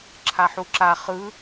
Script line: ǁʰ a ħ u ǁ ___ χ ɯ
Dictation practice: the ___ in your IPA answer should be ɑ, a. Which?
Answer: a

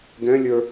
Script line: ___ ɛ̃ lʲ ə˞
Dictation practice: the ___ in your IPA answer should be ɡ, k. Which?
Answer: ɡ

